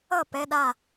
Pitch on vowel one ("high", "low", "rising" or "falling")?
falling